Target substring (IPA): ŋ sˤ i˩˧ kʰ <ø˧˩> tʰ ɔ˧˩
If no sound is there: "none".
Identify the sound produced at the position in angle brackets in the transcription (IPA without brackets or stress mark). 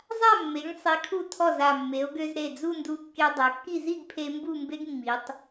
u˧˩